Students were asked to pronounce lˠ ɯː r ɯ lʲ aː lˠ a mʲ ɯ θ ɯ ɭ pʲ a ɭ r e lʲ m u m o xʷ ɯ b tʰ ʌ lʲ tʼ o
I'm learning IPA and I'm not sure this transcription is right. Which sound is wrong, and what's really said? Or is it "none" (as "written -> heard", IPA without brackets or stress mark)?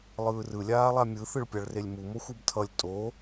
none